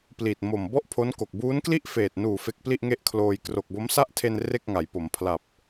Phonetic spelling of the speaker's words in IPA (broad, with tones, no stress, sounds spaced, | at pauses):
p l i˨˩ t̚ m o˨˩ m b ɔ˥˩ ʔ pʰ o˦˥ n k o˨˩ k̚ b uː˦˥ n k l i˥˩ ʔ f eː˨˩ t̚ n uː˨˩ f e˦˥ k̚ p l i˥˩ ʔ ŋ e˥˩ ʔ kʰ l oː˧ j k r o˨˩ k̚ b o˦˥ m s a˥˩ ʔ tʰ e˧ n r e˥˩ k̚ ŋ a˩˦ j p o˩˦ m pʰ l a˨˩ p̚